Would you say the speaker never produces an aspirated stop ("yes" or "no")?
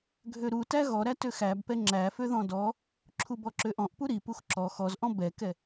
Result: no